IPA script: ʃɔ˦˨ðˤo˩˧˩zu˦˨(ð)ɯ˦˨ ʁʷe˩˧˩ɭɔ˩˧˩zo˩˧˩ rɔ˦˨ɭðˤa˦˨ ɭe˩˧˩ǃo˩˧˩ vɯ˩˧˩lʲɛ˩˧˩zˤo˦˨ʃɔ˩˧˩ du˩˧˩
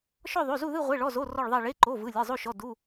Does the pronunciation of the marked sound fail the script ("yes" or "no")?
no